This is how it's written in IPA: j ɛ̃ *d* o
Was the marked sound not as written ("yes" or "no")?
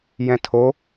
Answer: yes